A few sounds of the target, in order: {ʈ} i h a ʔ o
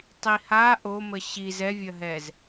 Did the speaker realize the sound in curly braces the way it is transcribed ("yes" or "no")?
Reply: no